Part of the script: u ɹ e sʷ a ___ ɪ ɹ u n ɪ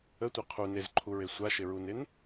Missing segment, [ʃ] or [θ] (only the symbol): ʃ